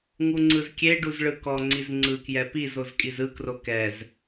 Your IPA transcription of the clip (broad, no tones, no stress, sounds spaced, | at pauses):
ŋ u ŋ͡ǀ ɯ z kʲ e ɖ u z ɭ ɯ k ɔ ŋ͡ǀ i z ŋ͡ǀ ɯ k j ɛ p i z o z kʼ i z ɯ k r o k ɛ z